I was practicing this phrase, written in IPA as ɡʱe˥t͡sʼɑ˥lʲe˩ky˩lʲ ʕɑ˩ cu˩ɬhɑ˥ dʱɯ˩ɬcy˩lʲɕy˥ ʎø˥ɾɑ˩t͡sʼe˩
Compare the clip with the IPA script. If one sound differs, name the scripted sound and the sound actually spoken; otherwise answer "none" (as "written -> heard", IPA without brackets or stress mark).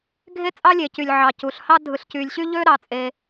k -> c